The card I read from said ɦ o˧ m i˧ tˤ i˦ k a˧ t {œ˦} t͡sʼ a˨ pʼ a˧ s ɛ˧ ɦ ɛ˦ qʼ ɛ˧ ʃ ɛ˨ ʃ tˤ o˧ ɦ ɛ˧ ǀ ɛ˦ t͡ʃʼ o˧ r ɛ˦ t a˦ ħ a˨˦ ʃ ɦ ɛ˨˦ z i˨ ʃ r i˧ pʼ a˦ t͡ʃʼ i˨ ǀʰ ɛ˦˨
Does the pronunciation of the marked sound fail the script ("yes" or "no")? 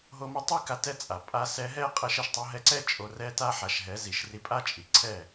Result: yes